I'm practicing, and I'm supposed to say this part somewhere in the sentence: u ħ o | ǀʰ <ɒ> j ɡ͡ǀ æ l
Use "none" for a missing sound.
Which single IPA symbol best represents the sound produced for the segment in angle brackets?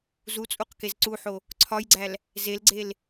ɒ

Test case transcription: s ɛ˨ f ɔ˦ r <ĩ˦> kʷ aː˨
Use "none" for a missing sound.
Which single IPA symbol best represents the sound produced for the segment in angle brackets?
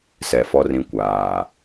ĩ˦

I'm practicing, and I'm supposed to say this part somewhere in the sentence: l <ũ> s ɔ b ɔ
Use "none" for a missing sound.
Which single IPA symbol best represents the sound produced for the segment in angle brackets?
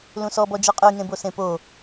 ũ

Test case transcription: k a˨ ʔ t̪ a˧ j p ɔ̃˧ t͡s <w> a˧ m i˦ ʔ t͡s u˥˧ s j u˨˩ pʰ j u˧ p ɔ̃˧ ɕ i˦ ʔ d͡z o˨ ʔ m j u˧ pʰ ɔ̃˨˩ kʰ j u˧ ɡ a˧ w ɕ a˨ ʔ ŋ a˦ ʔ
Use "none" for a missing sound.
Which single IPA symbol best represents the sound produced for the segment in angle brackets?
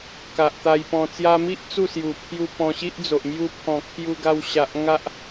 j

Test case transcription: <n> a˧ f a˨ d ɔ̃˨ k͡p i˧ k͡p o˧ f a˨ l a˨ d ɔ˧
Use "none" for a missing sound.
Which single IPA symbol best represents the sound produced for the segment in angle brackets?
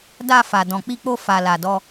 d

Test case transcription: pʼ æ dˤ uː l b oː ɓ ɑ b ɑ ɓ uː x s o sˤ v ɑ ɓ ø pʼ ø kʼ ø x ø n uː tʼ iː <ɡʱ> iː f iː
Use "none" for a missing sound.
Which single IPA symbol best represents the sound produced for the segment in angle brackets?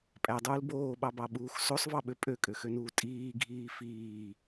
ɡʱ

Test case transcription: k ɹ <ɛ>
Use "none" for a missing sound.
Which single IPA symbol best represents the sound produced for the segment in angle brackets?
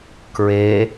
e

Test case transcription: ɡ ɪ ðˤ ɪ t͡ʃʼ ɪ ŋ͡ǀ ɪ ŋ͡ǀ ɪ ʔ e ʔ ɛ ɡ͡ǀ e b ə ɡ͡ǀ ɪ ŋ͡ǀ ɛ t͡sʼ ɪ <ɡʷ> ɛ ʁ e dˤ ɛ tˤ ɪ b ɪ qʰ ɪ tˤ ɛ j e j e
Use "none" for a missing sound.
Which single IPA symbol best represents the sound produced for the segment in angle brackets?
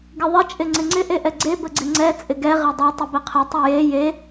ɡ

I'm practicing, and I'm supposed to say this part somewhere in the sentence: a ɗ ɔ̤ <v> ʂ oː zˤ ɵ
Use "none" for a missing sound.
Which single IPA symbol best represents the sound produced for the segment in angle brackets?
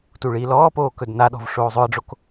v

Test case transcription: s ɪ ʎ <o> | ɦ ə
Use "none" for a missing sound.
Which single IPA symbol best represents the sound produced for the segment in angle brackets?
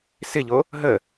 o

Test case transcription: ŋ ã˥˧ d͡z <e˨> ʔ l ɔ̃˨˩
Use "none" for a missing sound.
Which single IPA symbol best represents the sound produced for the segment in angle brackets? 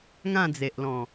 e˨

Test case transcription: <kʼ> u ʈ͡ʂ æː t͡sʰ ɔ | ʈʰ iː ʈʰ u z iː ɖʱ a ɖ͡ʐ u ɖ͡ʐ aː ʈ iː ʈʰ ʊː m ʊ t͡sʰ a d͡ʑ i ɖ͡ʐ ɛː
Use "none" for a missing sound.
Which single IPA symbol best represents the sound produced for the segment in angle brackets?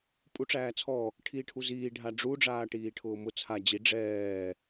pʼ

